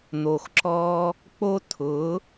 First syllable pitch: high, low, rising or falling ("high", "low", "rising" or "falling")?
low